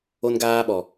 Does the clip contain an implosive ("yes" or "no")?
yes